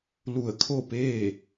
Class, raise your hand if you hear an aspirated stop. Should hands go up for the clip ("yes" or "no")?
yes